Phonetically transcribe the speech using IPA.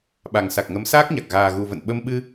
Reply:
ɓa˨˩ŋsa˨˩k̚ŋə˨˦m saː˦˥k̚ɲa˨˩k̚ ɣaː˨˩ɣu˨˩və̰˧˨n ɓə˧mɓɨ˧

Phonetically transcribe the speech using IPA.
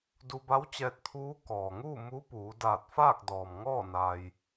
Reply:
du˧ba˧˥wt͡ɕɛː˧t̚ t̪ʰuː˧˥ kɔː˩ŋuː˥˨ mu˧˥puː˩˧ daː˧˩t̚faː˥˨k̚dɔː˩m ŋɔː˥˨ naː˧j

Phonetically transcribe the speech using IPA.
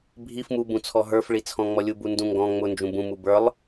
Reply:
bʱif mubũt͡sʰɔ ɦə˞fɭit͡sʰɔ̃ŋ͡mɔ lʲubundũŋɡɔ̃ ŋ͡mʊnd͡ʒũ bũmu bə˞lˠ

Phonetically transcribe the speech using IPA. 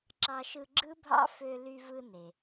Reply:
ǁɑ˦ʃɯ˦ ɡ͡ǁɯ˥bʱɑ̰˥ fø˦ly˦vɯ˦ ne˨

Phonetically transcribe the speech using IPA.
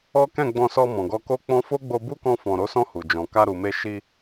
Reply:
ɔ˦ kɛ̃˦˨ɡ͡bɔ̃˧sɔ˧ mɔ̃˨ɡɔ˧ko˦k͡pɔ̃˦ fo˦ɡ͡bo˧ bu˦kɔ̃˧ fɔ̃˨ɾo˨˦sɔ̃˧ hu˨ d͡ʒɔ̃˨ ka˧ɾu˨me˧ʃi˧

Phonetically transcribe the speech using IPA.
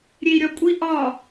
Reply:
ɾʲei̯ɾʲɒkʷʼi ʔɒ

